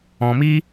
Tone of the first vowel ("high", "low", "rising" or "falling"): low